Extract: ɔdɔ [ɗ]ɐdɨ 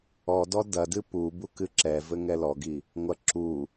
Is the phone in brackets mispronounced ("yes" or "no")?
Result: yes